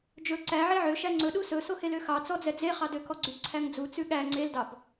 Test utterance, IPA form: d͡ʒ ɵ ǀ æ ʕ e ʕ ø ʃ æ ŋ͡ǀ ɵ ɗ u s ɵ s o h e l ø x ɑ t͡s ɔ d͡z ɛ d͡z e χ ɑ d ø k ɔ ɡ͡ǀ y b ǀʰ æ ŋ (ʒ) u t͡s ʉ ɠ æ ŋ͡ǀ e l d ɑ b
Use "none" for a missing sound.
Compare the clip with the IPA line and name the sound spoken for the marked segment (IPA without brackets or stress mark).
d͡z